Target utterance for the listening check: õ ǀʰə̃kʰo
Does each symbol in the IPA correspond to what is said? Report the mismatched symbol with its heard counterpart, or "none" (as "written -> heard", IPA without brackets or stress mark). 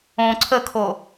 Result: ə̃ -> ə